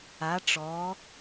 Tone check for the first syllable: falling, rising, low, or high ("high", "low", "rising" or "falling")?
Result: rising